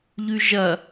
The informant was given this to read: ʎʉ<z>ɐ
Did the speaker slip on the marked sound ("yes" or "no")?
yes